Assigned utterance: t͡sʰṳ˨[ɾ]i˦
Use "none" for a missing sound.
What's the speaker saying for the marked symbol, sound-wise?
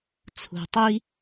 tˤ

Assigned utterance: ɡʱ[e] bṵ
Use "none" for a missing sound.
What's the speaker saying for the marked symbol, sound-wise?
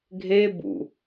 e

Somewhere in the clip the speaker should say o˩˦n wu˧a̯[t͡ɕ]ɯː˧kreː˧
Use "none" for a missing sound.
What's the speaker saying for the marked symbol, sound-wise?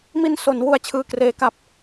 t͡ɕʰ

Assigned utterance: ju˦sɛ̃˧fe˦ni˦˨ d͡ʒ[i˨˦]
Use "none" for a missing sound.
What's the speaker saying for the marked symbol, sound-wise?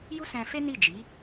i˨˦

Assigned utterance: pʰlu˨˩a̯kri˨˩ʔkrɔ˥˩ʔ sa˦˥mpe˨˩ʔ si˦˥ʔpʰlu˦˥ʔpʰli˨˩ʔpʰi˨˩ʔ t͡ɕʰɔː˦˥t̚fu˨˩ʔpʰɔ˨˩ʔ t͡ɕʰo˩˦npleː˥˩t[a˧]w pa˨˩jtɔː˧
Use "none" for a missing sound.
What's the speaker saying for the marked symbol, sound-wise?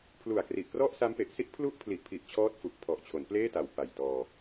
a˨˩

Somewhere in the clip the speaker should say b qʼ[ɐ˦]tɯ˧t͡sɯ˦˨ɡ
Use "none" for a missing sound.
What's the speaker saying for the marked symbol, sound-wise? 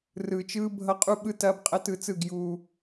ɐ˦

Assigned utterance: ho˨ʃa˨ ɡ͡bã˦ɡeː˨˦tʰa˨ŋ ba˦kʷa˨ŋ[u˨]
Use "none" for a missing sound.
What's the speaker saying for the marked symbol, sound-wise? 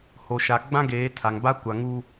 u˦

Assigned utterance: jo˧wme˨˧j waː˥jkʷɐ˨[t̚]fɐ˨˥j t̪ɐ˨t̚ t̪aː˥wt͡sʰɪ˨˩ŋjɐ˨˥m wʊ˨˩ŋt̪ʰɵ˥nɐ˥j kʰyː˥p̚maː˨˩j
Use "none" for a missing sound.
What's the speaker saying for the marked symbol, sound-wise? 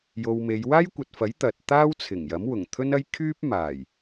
t̚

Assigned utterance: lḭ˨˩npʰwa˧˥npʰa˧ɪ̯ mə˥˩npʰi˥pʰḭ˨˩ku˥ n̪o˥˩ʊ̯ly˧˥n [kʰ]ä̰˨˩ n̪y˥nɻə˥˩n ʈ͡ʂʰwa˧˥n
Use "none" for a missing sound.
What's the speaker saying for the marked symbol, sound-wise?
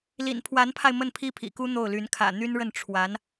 kʰ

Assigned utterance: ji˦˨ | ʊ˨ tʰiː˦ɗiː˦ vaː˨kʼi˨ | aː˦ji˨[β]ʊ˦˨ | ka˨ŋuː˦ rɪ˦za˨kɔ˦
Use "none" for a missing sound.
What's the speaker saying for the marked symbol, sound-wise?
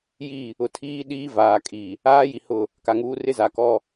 h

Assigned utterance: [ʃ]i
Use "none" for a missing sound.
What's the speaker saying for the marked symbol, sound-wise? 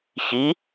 ç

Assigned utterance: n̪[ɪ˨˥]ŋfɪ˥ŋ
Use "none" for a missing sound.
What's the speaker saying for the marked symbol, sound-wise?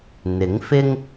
ɪ˨˥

